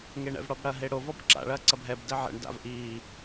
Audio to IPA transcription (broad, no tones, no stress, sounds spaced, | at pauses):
ŋ e ɳ ɛ̰ v ɽ ɔ b ɽ ɐ ɦ e ɽ o v ɔ b ǁ a̰ ɭ ɐː ǀ ɐ b ɦ ɛ b d ɛ ʕ ɛ̰ ɳ d a̰ v ʔ iː